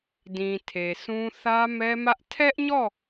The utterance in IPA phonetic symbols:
d ĩ˨ tʰ e˨ sʰ ũ˦ θ ä˦ m ɛ˦ m ä˦ ʔ tʰ ɛ˦ ʔ ɲ ɔ˦˨

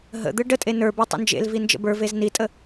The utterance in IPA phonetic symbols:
ɦ ə̰ d̪ ɯ ɖ ə tʼ e n ə˞ b e tˤ ə̰ n d͡ʒ ḛ l v i n d͡ʒ ə̰ b ə˞ v e z n i tʼ ə

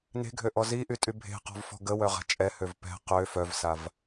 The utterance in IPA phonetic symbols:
n e̤ ɡʱ ø ʔ ɔ z i ʔ y tʼ y bʱ e̤ q ɔ̤ v f ɔ̤ ɡ ə w œ ʁ a̤ t͡ʃʼ ɛ h ø v p ɛ̤ q ø f œ v s a v

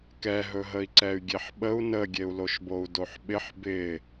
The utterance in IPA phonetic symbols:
k ɛ ɦ ɵ ɦ ə i̯ ǀ ɛ y̯ ɡʲ e ħ ɓ ə u̯ n ə ɡʲ e u̯ l o ʃ b o u̯ d o ħ ɓ ɪ ħ b ɪ

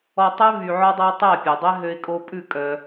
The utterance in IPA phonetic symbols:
ɔ˧ tˤ ø˦ v y˨ ʕ ɔ˧ dˤ æ˧ tˤ æ˦˨ pʲ ø˨ dˤ ɛ˦ ɦ ø˧ ɪ̯ kʼ o˧ pʼ ʉ˦˨ kʼ œ˧

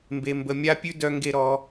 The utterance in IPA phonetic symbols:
m b e˨ m b ə˨ mʲ a˦ pʲ ʉ˦ d œ˦ ŋ ɡ e˦ ɾ ɔ˨˦

